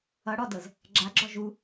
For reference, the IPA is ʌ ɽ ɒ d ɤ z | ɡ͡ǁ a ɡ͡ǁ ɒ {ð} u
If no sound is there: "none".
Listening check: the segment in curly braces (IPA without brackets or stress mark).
ʒ